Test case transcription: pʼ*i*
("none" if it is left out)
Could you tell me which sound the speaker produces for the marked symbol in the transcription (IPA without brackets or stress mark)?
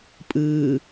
ɨ